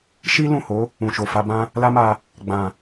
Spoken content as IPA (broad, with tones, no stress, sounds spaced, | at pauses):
ʃ i˦ l ũ˦˨ h o˨˦ | ũ˨ ʃ o˨ f a˧ b ã˦ | l a˦ m a˧ | ɡ͡b ã˨